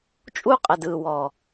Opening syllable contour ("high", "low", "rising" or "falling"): high